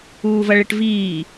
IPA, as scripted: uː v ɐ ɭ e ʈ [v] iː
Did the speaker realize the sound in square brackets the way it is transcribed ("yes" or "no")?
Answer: yes